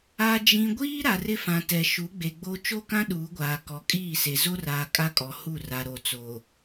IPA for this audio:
a˨ d͡ʒ ĩ˨ ɡʷ iː˦ ɾ a˨ r ɪ˦ f ã˨ t ɛ˨ ʃ u˨˦ ɡ͡b e˨ ɡ͡b o˦ t͡ʃ o˦˨ k ã˦ ɗ uː˨˦ ɡʷ aː˨ k ɔ˨ kʼ iː˦˨ s e˨ z o˦ r aː˨ kʼ a˦ kʼ ɔ˨ h u˦˨ r a˨ ɾ o˨ t͡s o˨

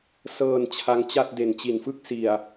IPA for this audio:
s ɤː˧ n t͡ɕʰ a˦˥ ŋ t͡ɕ a˥˩ t̚ d e˨˩ n t͡ɕ i˨˩ n f ɯ˥˩ k̚ s i˨˩ a̯

